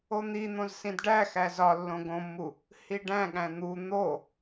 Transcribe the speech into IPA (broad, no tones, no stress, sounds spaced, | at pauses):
o n̪ i n̪ õ z s ĩ d ɖ æ x æ z ɒ lː õ ɡ õ mː u | h i ɖ æ̃ ɠ æ̃ n̪ u n̪ o